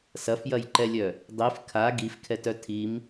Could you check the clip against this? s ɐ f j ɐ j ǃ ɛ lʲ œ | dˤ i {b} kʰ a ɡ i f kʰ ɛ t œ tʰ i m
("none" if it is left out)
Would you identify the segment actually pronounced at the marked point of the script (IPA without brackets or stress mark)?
f